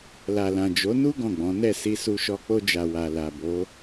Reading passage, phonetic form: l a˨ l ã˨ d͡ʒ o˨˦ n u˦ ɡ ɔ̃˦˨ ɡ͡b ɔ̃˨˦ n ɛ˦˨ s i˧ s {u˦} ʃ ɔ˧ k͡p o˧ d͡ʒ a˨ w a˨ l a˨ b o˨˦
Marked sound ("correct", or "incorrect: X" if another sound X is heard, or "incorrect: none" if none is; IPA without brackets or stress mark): incorrect: u˧